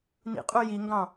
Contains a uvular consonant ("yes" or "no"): yes